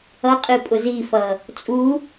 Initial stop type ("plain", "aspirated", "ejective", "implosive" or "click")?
ejective